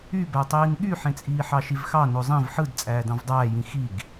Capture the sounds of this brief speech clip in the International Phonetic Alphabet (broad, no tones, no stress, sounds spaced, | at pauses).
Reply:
y b æ tˤ iː n ɠ y ħ ẽ t͡sʼ iː ħ ɑ ʃ i v x ɑ n o zˤ ĩ v ħ ɯ d t͡sʼ æː d ɑ̃ v dˤ æː j ĩ x i ɡ